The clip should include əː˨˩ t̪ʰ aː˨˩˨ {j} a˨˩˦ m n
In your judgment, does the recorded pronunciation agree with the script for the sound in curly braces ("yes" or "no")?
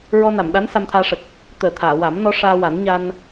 no